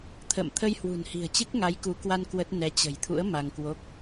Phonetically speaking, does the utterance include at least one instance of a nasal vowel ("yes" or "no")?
no